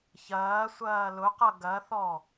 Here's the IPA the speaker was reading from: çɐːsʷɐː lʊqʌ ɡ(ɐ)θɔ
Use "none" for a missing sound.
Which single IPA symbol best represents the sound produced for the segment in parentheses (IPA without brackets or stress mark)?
ɐ